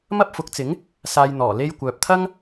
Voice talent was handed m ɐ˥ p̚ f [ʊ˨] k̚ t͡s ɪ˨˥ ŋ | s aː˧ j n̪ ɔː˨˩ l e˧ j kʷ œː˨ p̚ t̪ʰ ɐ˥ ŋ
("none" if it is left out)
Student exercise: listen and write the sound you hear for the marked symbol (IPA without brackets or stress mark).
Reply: ʊ˨˥